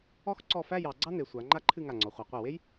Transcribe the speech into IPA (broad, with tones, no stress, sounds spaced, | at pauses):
ɔ˥ x ǀ ɔ˥˧ f æ˥˧ j ɑ˩˧ ɡ͡ǀ ɑ˥ n e˩˧ sʷ a˩˧ ŋ͡ǃ a˥ ǃʰ ɨ˥˧ ŋ a˧˩ ŋ͡ǀ ɔ˩˧ χʷ ɑ˩˧ qʷ e˧˩ w e˥ j